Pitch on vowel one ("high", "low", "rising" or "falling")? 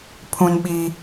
high